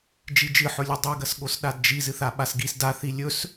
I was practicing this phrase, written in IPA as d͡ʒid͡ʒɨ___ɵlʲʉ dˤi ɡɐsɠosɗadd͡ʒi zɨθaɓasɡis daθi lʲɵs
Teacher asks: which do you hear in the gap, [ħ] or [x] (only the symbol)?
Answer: ħ